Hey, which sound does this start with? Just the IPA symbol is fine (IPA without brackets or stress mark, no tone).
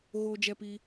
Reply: ɣ